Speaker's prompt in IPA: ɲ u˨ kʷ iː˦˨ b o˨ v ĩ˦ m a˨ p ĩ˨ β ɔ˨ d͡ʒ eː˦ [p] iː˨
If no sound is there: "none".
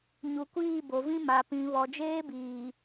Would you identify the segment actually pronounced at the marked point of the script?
b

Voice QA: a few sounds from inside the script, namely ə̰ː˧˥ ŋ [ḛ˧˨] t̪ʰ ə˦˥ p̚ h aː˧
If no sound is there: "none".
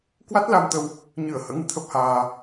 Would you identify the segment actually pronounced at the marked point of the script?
ɨ̰˧˨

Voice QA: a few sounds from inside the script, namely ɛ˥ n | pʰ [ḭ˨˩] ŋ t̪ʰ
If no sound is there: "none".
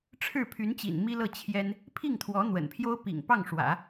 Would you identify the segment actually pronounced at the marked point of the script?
i˥˩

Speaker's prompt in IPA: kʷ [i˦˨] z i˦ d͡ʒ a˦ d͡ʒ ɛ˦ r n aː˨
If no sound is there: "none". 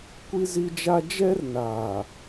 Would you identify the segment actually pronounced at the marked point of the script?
i˦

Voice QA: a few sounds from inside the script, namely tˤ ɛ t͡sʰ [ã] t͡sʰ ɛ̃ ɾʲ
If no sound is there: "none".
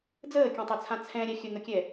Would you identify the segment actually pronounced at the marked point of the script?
ã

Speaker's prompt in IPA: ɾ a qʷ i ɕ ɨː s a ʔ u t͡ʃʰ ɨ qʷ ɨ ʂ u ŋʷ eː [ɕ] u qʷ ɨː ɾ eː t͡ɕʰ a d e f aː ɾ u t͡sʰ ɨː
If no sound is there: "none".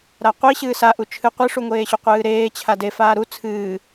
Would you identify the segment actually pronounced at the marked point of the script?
ɕ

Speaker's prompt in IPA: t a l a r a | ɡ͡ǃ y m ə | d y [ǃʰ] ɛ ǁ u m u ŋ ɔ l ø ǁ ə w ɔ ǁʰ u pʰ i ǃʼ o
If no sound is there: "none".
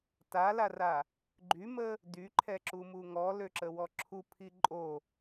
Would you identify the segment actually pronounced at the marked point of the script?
ǃʰ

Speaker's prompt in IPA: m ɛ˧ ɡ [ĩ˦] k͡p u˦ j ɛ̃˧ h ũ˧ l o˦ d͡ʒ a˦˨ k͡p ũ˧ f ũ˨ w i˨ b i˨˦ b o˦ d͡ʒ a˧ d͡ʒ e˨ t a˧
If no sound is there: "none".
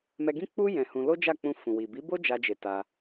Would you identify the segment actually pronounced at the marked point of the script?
ĩ˦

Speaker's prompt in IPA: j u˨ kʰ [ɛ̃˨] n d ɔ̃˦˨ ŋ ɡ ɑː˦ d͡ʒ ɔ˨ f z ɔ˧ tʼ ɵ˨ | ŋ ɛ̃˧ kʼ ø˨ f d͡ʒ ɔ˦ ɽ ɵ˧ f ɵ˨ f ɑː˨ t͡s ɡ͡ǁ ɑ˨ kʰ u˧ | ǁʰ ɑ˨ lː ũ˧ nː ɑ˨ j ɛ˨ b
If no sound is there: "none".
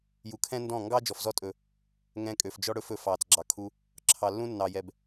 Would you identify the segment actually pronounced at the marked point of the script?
ɛ̃˦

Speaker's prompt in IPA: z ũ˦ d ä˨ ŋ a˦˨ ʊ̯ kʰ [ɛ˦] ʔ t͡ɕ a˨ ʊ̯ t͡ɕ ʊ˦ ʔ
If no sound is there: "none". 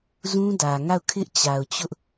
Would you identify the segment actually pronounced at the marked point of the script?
ɪ˦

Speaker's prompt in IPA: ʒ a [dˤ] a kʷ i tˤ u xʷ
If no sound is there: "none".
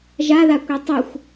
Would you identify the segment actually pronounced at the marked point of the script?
ð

